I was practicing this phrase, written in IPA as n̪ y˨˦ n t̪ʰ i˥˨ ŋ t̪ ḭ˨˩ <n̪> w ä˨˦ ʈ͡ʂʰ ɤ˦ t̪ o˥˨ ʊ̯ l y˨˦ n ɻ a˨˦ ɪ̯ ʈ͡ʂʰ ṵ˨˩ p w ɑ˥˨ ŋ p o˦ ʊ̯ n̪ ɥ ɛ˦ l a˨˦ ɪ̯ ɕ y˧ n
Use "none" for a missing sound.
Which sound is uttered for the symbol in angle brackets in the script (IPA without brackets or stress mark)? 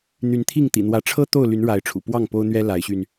n̪